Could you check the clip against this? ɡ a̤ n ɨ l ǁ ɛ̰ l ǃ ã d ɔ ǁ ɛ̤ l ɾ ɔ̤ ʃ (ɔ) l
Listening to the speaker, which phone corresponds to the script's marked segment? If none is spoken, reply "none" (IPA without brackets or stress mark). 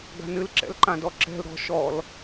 ɔ